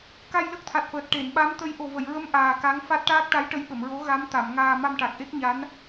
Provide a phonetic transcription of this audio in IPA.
ka˧jlə˦˥k̚t̪ʰa˨˩t̚fəː˨˩t̚ ʈe˨˩˨nɓa˧˥m t̪ə˧˥j ʔo˨˩və˨˩˨jɹə˧˥m ʔaː˨˩ ka˧˥ŋfa˦˥t̚ ʈaː˦˥k̚ʈa˧˥j ʈə˧˥jɓə˨˩˨mɹo˧˥ ɣa˧˥mt̪a˨˩˨mŋaː˧ ma˧mʈa˨˩k̚ʔe˦˥k̚ɲa˧˥n

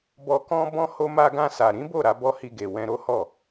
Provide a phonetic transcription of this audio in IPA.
bɔ˨kɔ̃˧bɔ̃˧ ho˧ma˧ɡã˧sa˨ ɾĩ˨˦bo˦˨ɾa˧ bɔ˦hi˧ɡe˨ wɛ̃˧ɾo˦hɔ˦˨

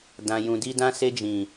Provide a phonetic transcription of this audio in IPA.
dã˨jũ˨di˧ dã˧se˧ d͡ʒĩ˨

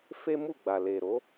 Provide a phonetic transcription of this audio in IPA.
fe˦mu˦˨ɡ͡ba˨ le˨ɾo˨˦

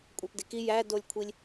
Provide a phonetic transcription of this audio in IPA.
kʷʼæpdeki jædolʲkʷʰilʲ

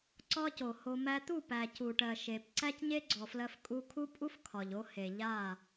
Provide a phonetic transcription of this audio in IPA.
ǀɒ˦co˨ho˧ mæ˧t̪u˦˨ pæ˨cu˨ʈɜ˨ ʃe˨p ǀæ˦cɲe˦ɡ͡ǀɔ˨flɜ˧f kʼu˧ kʰu˦pʼu˦f kʰɒ˨ʎo˦ he˨ ʎa˦˨

